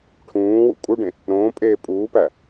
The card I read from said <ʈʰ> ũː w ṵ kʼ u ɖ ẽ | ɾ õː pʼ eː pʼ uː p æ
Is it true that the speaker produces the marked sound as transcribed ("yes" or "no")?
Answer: yes